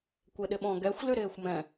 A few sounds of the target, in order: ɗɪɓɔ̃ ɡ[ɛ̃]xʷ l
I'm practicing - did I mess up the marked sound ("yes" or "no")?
yes